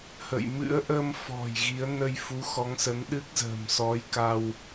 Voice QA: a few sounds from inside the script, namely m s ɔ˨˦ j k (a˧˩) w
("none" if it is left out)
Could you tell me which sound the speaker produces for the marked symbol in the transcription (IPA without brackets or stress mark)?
a˧